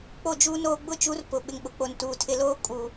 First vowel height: mid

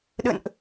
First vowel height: mid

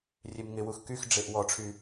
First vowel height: mid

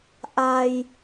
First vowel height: low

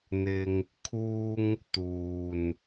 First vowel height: high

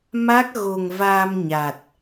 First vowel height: low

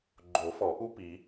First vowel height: mid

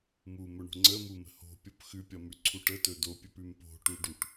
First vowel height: high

